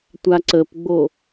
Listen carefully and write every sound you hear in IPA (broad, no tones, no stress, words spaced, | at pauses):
tʷaǀəpɡ͡bo